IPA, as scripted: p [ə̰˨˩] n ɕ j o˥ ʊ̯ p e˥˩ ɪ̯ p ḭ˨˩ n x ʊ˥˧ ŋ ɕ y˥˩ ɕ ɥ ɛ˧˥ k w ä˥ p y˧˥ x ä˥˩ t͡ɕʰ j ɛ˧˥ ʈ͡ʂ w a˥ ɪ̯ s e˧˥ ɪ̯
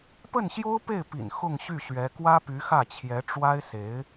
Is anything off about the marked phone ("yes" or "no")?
yes